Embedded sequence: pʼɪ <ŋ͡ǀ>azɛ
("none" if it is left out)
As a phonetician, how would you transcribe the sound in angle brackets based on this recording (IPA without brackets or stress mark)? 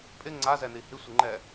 ŋ͡ǀ